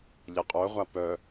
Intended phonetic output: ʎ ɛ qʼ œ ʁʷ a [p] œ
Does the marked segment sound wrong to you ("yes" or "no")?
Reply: no